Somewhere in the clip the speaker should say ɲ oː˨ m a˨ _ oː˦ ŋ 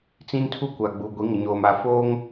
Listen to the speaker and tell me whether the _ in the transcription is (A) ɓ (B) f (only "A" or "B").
B